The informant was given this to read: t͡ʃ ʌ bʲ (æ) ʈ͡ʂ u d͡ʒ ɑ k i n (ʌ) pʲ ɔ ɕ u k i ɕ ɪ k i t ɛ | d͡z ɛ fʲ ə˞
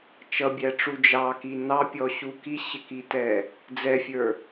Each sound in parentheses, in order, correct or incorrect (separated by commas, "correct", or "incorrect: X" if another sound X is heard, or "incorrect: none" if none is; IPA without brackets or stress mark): correct, incorrect: ɑ